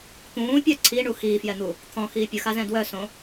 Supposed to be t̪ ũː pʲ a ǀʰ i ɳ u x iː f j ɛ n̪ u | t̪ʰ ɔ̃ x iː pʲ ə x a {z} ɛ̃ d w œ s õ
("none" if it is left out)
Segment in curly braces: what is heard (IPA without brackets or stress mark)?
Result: z